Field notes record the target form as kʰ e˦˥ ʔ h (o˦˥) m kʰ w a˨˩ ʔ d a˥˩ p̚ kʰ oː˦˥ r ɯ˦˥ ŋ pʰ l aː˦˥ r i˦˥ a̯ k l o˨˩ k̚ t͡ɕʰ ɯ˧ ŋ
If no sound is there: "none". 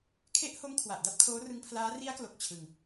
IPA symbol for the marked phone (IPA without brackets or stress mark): o˦˥